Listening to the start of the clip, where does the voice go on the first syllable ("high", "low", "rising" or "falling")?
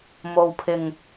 low